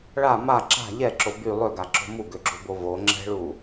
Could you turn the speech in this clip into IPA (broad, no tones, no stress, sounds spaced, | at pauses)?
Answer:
ɭ a m a ǁ a̤ ʎ ɛ ǁ o b y lˠ ø ɡ a ǁ o̤ m u ɡ ø ɡ͡ǁ o b o v o ŋ͡ǁ ɛ̤ ɭ u